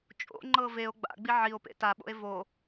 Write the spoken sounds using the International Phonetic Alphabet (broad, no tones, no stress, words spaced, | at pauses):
t͡ʃʼo̰ŋ͡ǃɤ veo̯ ɡ͡ba̰ɡ͡bi ʕio̯pḛ taɓo̰e̯ vo